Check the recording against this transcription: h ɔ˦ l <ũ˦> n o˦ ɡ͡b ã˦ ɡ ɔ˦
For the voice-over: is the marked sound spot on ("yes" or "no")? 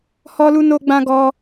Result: no